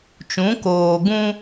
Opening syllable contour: rising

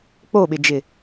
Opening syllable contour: falling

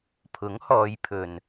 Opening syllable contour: rising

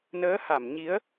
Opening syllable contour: rising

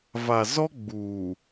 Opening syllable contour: low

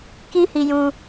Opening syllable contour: high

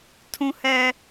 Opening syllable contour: high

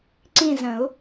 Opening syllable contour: falling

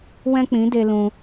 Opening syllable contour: high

